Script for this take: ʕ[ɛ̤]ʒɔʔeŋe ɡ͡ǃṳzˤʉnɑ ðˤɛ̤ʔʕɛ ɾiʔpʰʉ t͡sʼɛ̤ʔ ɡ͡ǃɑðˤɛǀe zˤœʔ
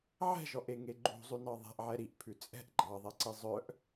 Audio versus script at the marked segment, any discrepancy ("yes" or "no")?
no